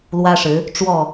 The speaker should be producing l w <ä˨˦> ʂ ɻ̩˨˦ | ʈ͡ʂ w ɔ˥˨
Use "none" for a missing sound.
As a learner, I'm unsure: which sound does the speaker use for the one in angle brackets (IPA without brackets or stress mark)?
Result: ä˦